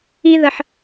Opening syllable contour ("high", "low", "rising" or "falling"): high